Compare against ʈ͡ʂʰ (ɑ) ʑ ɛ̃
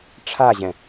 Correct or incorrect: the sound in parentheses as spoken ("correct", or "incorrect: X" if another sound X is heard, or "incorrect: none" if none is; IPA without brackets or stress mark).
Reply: incorrect: a